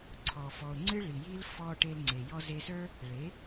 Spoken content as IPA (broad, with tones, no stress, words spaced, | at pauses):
ǀʰɔ˨fɔ˨ʊ̯ ŋ͡ǀɨ˦ɭi˨ji˦l fɔ˧ ʈe˧lŋ͡ǀe˨ jɔ˧ze˧sə˞˦ | ɭe˨˦